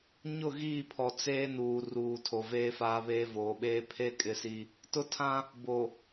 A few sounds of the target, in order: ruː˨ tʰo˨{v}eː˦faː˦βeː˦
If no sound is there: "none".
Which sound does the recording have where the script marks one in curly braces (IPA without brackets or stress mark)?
v